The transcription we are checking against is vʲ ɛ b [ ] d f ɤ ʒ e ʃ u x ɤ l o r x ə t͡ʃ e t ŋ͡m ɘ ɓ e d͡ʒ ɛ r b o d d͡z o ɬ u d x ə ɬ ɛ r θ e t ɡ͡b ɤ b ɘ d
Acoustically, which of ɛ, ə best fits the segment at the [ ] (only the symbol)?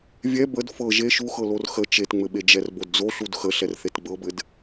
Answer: ə